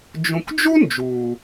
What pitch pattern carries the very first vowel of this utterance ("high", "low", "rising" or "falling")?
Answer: low